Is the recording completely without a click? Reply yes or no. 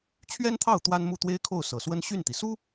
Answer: yes